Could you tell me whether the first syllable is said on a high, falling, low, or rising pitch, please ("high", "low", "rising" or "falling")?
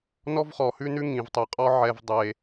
high